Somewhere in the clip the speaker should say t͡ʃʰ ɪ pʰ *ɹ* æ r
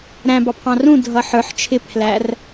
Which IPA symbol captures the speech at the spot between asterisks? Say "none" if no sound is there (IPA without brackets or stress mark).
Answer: l